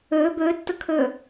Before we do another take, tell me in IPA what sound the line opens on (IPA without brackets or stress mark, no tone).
ø